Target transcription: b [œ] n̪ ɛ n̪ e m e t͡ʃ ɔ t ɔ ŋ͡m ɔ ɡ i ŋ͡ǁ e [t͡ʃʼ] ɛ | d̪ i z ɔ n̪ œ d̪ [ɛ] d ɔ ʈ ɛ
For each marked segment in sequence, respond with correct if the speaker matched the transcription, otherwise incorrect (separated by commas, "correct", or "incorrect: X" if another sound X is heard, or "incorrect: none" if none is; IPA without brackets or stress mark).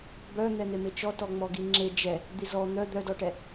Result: correct, incorrect: d͡ʒ, incorrect: œ